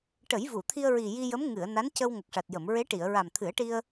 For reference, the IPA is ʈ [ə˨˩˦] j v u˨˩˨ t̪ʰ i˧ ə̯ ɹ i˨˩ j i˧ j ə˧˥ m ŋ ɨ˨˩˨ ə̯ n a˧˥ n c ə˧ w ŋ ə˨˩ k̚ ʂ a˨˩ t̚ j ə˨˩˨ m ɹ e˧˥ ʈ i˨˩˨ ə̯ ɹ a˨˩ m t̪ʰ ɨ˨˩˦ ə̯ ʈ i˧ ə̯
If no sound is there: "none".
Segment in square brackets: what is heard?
ə˨˩˦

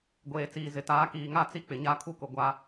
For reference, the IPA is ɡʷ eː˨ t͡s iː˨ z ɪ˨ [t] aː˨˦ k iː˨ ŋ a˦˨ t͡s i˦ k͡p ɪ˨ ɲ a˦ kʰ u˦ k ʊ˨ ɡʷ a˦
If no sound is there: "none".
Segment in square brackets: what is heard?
t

